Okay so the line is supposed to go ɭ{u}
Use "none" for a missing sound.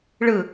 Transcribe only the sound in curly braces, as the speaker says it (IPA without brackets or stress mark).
ɯ